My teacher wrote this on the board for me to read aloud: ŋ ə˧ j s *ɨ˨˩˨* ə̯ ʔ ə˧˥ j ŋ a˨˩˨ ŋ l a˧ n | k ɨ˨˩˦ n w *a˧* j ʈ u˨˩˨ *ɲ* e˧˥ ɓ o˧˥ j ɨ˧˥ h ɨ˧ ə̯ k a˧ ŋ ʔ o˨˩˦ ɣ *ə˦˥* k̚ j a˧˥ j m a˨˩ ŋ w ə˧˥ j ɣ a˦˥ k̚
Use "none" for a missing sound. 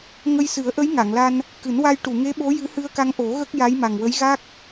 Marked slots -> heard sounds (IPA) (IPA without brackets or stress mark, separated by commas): ɨ˨˩˦, a˧, ŋ, ə˦˥